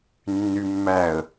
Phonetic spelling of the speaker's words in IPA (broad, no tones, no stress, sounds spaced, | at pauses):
nː y mː æ ə̯